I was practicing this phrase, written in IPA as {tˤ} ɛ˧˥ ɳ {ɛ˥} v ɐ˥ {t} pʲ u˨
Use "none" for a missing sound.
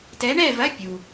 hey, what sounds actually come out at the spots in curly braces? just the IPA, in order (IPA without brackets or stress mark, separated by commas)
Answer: t, ɛ˥˧, none